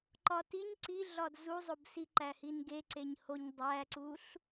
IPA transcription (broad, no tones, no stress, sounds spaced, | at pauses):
ǃ ɒ t i ɲ ǀ i ɮ ɒ d z u zˤ o b s i ǃ æ h i n ɡ e ǀ e ɲ h o ɲ dˤ æ ǀ u ɬ